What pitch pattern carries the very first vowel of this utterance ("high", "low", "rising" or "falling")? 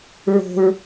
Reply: high